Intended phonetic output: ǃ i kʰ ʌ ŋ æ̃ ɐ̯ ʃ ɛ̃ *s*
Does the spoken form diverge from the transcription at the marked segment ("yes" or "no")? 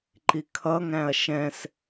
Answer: no